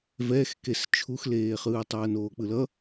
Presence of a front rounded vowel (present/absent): absent